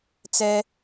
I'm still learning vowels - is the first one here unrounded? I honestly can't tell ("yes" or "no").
yes